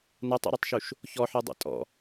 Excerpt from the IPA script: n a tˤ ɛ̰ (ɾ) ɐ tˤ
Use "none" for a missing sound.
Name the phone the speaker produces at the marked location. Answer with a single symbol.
ɾ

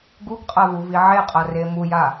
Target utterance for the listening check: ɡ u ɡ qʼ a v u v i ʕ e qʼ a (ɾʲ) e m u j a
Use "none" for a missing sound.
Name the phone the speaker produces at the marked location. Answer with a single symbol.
r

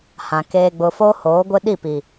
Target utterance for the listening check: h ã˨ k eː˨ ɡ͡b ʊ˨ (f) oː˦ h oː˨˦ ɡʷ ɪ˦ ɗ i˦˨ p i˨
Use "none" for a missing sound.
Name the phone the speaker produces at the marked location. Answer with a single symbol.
f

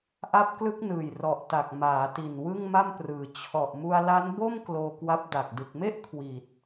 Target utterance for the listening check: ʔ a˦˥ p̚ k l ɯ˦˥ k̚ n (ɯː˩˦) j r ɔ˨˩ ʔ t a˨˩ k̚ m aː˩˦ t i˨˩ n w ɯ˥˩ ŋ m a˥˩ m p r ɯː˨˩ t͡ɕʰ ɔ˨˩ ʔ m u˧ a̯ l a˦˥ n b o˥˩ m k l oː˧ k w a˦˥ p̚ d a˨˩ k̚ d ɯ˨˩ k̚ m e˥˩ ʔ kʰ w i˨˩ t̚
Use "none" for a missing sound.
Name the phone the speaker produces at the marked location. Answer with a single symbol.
ɯː˨˩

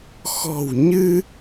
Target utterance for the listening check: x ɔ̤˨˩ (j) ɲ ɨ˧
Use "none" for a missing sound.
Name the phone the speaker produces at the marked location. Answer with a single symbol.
w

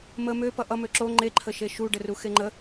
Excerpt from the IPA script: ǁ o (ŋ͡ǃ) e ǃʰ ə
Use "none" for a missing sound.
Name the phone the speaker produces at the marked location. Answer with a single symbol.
ŋ͡ǃ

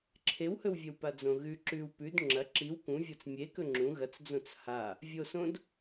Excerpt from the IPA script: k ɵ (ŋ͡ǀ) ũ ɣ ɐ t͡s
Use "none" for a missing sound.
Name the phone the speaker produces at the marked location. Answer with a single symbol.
ŋ͡ǁ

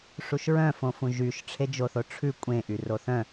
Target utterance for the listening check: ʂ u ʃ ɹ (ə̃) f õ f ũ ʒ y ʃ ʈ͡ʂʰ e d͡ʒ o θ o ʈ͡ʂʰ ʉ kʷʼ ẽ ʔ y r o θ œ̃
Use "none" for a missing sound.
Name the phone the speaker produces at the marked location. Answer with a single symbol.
œ̃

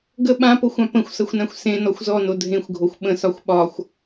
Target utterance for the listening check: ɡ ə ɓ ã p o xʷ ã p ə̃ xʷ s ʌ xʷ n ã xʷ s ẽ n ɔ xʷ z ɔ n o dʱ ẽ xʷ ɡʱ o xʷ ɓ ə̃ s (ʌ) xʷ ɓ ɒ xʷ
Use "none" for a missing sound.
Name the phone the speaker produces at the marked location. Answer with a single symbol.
ɒ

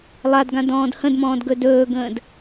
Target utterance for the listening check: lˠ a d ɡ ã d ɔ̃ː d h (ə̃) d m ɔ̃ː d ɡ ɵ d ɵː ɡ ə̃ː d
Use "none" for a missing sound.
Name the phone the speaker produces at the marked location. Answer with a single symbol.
ə̃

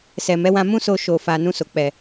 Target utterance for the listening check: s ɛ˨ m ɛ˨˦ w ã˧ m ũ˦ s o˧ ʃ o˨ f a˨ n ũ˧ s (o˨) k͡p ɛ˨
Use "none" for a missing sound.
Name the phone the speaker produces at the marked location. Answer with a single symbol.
o˨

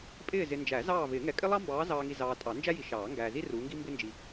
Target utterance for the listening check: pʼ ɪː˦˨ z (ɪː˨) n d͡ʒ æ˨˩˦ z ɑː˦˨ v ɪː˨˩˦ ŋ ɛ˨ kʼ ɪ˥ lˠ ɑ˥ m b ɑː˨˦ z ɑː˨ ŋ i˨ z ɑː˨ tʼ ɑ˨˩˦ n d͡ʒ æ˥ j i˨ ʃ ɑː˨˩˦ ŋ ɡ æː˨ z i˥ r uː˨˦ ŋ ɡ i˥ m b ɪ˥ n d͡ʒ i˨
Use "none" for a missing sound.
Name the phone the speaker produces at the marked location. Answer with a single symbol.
ɪ˨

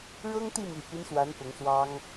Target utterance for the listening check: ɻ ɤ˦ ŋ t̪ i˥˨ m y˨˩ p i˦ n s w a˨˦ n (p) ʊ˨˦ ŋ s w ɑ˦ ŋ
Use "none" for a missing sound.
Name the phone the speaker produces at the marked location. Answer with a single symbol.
p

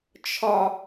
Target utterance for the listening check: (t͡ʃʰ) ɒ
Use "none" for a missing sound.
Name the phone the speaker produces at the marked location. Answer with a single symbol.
t͡ʃʰ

